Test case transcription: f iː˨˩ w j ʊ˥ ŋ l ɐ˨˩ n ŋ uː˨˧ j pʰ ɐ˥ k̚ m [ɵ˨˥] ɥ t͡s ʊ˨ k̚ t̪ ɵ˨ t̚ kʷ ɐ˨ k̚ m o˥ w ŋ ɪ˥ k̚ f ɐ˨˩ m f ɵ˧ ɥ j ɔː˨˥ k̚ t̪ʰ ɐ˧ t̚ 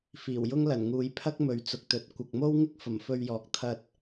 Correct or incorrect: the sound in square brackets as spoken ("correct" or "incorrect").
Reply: incorrect